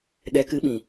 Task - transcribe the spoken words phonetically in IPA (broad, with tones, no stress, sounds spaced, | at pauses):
ɗ ɛ˨˦ k ɨ˨˦ ɓ ĩ˨